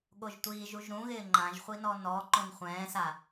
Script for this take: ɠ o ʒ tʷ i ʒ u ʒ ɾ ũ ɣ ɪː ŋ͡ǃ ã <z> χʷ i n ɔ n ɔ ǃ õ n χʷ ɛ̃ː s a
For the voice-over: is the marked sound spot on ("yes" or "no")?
no